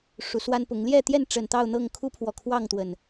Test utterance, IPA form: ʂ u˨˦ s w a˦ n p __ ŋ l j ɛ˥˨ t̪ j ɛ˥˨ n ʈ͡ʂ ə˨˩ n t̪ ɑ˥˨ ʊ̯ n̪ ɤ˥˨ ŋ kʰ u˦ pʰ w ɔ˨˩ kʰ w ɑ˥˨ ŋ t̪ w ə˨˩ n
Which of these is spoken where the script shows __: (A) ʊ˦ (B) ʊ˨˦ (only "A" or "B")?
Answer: B